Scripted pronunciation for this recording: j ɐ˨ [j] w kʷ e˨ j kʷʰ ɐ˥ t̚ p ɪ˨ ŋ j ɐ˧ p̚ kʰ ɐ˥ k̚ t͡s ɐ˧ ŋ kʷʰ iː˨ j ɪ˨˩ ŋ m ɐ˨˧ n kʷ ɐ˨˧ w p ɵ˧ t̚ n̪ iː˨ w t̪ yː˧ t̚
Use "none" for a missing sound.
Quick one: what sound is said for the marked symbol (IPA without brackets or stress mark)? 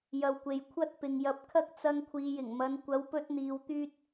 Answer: none